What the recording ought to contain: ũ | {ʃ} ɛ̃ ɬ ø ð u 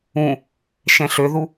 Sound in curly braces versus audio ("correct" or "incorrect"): correct